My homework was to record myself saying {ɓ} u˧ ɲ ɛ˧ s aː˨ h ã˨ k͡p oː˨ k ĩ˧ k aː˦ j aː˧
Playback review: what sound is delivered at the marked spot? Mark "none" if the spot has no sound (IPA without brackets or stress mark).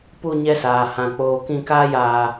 p